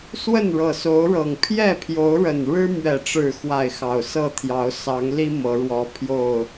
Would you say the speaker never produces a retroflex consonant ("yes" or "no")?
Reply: no